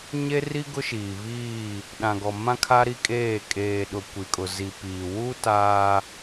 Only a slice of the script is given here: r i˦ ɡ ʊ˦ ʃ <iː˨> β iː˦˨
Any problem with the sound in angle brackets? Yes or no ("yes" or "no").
no